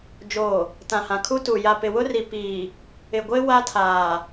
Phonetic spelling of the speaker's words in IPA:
d͡ʒ oː˨ | t ã˨ h ã˨ kʰ u˦ t u˨ j a˨ p ɪ˨ w ʊ˦ r i˨ p iː˨ | ɪ˨ ɡʷ e˦ w a˦ tʰ aː˨

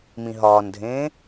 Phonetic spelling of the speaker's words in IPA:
m ĩ ɦ ɒː n dʱ ẽː

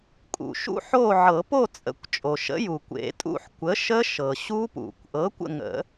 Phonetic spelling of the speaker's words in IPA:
kʼ ṵ˩ ʃ ṵ˦˥ ħ o˦˨ ʕ ɤ˨˩˦ p o˦˨ t͡sʼ ə̰˨˩˦ kʷ t͡ʃʼ o˩ ʃ ə̰˨˥ j u˩ kʷ ḛ˨˩˦ tʼ ṵ˦˨ ħ kʷ ə˨˥ ʃ ə˦˥ ʃ ɤ˩ ɕ u˦˥ p ṵ˨˩˦ kʷ ʔ ɤ˨˥ kʷ ə̰˦˨ ŋ ə̰˨˩˦

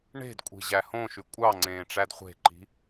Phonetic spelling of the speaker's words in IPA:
ɳ e̤ d kʷʼ i̤ ʑ æ h õ ʃ y kʷʼ ɑ ŋ͡ǀ ẽː ʈ͡ʂ æ d χʷ e̤ ǃ i̤

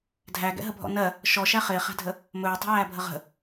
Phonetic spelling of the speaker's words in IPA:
dʱ æ ɡ ɛ̰ ɦ ə bʱ ɔ̰ n ɜ | ʃ ɔ ʃ æ χ ɪː χ æ̤ dʱ ə | m ɵː tˤ ə̤ j æː bʱ ə ʁ ə̤

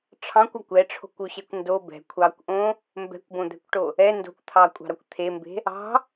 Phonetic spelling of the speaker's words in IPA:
ʈ͡ʂʰ ɑ̃ kʷ ɒ kʷ ɛ ʈ͡ʂʰ o̤ kʷ o ɕ ɛ kʷ n d o b ɛ̤ kʷʰ ɑː kʷ ʔ õ | m b ɛ̤ kʷ b õ d̪ ɛ̤ kʷ ʈ o | ɛ n d o̤ kʷ t̪ʰ ɑː kʷʼ ɑ̤ ɾ ɒ kʷ t̪ʰ e m b e̤ | ɑ̤

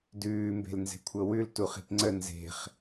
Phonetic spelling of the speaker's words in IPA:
d ʉː m b e̤ l n z e̤ kʷʰ ɤ w ʉ l t u χ i̤ p ŋ͡ǀ ə n z e̤ χ

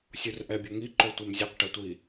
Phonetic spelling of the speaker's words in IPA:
sʲ u r ʔ ɛ bʲ ɔ ŋ i ǃ o tʷ ɛ m zʲ ə q ʈ ə tʷ i

